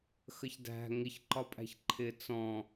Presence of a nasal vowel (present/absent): present